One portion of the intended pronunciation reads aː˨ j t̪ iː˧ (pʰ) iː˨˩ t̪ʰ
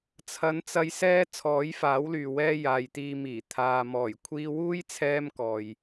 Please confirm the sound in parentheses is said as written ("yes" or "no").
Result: no